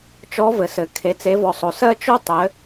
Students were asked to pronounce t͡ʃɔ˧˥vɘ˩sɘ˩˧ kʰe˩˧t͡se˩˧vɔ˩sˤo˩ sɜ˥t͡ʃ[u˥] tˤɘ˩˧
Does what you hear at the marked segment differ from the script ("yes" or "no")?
yes